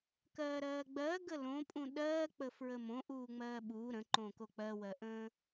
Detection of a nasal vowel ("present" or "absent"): present